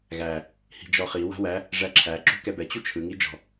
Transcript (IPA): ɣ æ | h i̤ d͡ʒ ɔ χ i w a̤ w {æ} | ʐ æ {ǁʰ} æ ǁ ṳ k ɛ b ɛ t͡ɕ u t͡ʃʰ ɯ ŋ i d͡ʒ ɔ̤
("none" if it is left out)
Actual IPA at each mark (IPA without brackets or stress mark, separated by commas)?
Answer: æ, ǁʰ